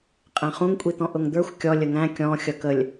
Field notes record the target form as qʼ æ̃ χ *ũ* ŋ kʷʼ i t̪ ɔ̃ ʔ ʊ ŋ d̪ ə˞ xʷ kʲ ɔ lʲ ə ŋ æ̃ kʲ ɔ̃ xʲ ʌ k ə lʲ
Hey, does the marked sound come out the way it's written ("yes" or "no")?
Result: yes